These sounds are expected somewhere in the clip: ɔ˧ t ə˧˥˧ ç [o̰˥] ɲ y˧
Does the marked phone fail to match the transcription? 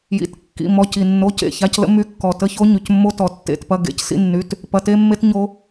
yes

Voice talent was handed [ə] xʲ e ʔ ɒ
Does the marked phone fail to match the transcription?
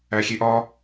yes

